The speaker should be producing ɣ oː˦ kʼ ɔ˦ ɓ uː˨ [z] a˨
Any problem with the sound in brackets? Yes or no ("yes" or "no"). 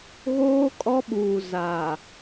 no